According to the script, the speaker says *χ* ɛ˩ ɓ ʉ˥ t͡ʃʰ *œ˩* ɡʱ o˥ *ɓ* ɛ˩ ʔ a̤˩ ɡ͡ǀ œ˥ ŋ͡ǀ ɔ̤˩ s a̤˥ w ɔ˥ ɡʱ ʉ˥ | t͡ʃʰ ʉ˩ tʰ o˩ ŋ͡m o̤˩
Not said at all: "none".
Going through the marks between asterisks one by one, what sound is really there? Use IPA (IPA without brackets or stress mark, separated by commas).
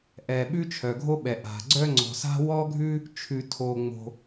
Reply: ʔ, œ˩, ɓ